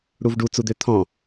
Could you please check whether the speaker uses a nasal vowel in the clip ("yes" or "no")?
yes